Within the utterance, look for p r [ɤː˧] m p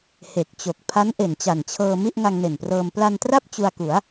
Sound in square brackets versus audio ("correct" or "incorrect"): correct